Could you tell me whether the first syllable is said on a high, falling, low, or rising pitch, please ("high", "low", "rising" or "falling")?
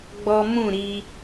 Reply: high